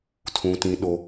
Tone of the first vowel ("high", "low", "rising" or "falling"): high